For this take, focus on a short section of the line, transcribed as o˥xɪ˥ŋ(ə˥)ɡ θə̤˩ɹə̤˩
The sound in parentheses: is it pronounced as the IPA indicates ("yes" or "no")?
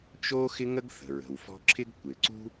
yes